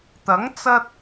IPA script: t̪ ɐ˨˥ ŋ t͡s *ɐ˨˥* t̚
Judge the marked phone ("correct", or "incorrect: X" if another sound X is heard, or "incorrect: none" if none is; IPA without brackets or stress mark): incorrect: ɐ˧